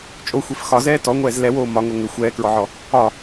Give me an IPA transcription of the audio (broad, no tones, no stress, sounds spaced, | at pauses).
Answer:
t͡ʃʼ o xʷ e f x ɒ z ɛː t ɔ ŋʷ ɛː z l ɛ w oː m ɒ ŋ o ŋ ʏ xʷ ɛː k ɹ ɔ ʕ ɔ | ɒ